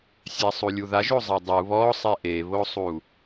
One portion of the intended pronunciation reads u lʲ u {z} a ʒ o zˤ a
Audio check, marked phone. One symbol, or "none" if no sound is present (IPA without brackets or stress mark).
ð